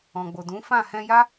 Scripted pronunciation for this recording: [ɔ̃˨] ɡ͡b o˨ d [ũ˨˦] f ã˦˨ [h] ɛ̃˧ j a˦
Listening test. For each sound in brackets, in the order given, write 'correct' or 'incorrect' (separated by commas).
correct, correct, correct